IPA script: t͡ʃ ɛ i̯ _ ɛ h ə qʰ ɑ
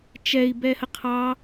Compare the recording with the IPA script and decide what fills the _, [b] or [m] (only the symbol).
b